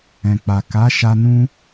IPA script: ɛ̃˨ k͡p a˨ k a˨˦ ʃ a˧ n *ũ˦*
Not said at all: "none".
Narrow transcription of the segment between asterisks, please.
ũ˦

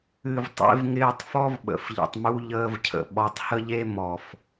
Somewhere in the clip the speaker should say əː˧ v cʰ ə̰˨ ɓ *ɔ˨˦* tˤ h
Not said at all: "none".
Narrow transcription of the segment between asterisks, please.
ɔ˨˦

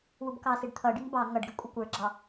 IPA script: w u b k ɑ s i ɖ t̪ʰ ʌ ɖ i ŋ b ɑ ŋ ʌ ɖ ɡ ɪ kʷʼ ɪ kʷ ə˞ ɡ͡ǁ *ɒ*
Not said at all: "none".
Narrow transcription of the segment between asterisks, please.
ɑ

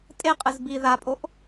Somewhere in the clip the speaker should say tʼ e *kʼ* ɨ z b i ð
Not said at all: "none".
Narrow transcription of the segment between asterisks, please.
qʼ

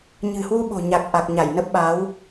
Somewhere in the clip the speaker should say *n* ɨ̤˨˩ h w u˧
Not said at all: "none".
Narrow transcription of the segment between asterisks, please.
ɲ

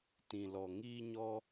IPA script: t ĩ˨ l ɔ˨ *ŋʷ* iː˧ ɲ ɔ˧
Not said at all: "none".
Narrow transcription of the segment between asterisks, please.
ŋ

